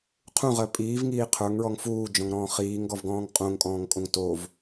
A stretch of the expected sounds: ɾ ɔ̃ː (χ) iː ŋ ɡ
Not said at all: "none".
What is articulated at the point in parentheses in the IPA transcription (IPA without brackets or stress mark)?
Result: χ